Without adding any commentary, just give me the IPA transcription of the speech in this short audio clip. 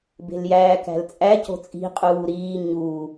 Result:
b e̤ l j æː k æ̤ l t͡sʼ æ c o̤ t͡sʼ i̤ qʼ uː ɾ iː ɲ u

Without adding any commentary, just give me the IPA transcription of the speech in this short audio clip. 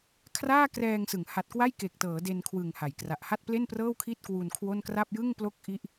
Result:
kʰ r aː˥˩ k r ɛː˧ ŋ s ɯ˩˦ ŋ h a˨˩ t̚ k w a˥˩ j k e˨˩ k̚ t ɤː˩˦ d e˧ n kʰ w ɯ˨˩ ŋ h a˩˦ j k r a˨˩ ʔ h a˥˩ t̚ p l e˥˩ n p r ɤː˥˩ w kʰ i˥˩ t̚ k w u˧ n kʰ w o˥˩ n k r a˥˩ p̚ j ɯ˥˩ ŋ p l o˥˩ k̚ ʔ i˥˩ ʔ

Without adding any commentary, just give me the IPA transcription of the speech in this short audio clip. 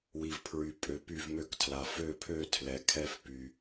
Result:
w i˨ v pʰ ɹ y˨ pʼ ø˨ p y˥˨ v m ø˥˨ k tʰ l a˨ f ø˥˨ pʰ ø˥˨ tʰ l ɛ˨ kʰ ɛ˥˨ f p y˨

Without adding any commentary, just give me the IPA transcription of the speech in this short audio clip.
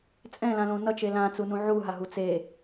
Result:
t͡sʼ ɛ̃ l ã l õ n ʌ t͡ʃ e l ã t͡s u n ũ ʕ u ɦ a ɦ u t͡s e

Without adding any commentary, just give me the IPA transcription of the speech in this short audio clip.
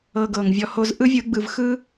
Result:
ɤ˧ ɡ ɤ˨ ŋ vʲ ɔ˧ h o˦ z ʔ ɯ˦ vʲ ɯ˨˦ ɡ͡b ɯ˨ v x ɯ˦

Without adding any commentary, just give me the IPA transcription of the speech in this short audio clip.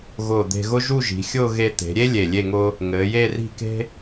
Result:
ɣ ʊː˧˩ d̪ e̤˧ ɣ ʊ˥ ʒ u˥˧ ʒ i̤˩˧ xʲ ʊː˥˧ ɣ e˧ t̪ e̤˩˧ ɾʲ e˥ lʲ e˧˩ lʲ e˥˧ ŋ ʊː˥ | ŋ ɘː˩˧ j e˥˧ r i̤˥˧ k e̤˥

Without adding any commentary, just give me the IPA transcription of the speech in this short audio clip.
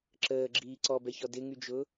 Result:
ǁ əː ɡ͡ǁ iː ǀ ɔ b ɛ ç ɔ d ɪ ŋ y d͡ʒ ʊː

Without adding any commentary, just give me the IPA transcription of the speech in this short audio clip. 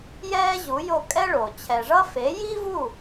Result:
j ɛː˥ ʑ u˩˥ j o˥˩ kʼ ɛ˥ ɭ o˩ t͡ɕʰ ɛ˩ ʐ ʌ˥ f e˩˥ j i˥ v u˥˩

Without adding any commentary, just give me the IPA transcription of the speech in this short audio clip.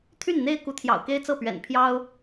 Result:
t̪ʰ y˥˩ n n̪ e˥ ɪ̯ k u˧˥ t̪ʰ j ɑ̰˨˩ ʊ̯ k e˥ ɪ̯ t͡s ɤ˥˩ p ɥ ɛ̰˨˩ n pʰ j ɑ˥ ʊ̯

